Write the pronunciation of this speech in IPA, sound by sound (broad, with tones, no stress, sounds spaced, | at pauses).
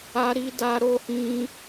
a˦ ɾ i˦ d a˦ ɾ o˦ h ĩ˦